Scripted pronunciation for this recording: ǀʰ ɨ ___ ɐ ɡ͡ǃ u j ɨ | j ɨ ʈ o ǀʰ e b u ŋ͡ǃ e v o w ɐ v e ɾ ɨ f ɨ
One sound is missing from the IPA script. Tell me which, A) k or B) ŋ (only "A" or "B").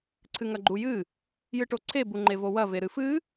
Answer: B